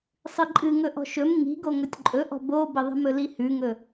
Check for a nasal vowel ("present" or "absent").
absent